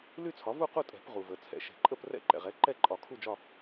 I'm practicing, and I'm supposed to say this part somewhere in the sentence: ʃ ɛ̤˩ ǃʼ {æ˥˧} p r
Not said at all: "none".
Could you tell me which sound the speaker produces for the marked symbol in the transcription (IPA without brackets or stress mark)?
ə˥˧